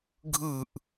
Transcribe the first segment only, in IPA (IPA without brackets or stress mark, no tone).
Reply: ɡʱ